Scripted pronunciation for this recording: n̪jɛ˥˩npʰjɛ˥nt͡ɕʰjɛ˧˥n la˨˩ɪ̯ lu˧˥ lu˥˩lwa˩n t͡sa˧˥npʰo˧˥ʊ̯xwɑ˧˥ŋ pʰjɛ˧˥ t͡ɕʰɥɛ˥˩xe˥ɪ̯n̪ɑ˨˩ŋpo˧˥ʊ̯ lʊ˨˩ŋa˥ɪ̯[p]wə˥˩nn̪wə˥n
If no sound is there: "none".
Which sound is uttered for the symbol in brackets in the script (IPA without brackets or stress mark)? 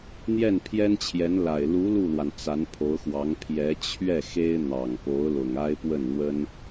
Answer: p